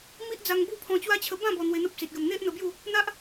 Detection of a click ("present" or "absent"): absent